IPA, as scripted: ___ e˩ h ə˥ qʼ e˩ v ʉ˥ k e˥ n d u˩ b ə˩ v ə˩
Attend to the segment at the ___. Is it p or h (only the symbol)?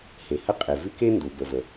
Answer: h